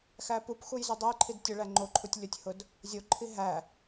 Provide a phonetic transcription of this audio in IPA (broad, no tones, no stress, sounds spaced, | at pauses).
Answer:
x æ p u p x u j z u dˤ æ j ǃʰ i d tʲ ʊ ɭ æ ŋ͡ǃ o ǃʰ u tʲ lʲ ʊ tʲ h ʊ d | zʲ o ǃʰ i ɦ æ